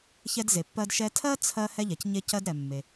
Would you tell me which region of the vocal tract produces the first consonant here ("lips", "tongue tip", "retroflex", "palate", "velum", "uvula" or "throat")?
palate